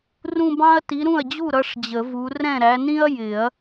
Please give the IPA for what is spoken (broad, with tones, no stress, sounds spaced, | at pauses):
r ũ˥˧ b ɑ̃˥ ɐ̯ t i˨˦ ɾ ũ˥˩ ɐ̯ d͡ʑ u˥˩ ɾ ʌ˥˧ ʂ d͡ʑ ə˨˩˦ v u˨˦ r ɛ̃˥˩ ɾ æ˨˦ n ĩ˥ ɐ̯ j ɪ˨˩˦ ɐ̯